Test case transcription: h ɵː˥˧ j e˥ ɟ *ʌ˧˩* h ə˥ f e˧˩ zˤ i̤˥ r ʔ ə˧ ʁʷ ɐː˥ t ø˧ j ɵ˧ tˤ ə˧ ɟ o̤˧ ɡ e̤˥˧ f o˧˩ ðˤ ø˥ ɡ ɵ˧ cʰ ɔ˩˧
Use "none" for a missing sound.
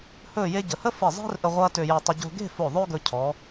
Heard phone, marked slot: ə˧˩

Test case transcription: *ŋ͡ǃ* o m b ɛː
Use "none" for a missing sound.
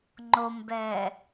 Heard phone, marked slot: ŋ͡ǃ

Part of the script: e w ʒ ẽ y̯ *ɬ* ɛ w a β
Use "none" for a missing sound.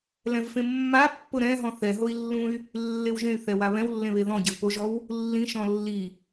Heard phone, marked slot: θ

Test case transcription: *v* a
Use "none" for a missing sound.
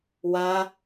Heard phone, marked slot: w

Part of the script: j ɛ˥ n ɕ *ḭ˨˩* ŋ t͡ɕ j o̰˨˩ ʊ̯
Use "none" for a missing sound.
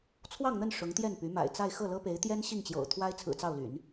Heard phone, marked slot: i˥˩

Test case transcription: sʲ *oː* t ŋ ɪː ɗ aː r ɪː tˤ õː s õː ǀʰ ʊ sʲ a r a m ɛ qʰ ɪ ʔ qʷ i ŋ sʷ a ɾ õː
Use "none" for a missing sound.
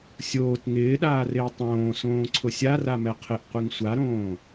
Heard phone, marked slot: oː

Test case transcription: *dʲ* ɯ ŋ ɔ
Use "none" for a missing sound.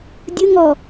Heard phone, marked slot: dʲ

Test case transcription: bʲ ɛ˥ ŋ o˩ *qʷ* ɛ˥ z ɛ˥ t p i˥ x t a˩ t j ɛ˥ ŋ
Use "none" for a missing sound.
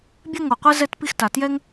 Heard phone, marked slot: qʷ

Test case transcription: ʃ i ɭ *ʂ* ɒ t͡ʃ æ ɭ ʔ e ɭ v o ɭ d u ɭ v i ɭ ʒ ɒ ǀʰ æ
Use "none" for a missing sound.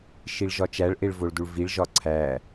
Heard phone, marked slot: ʒ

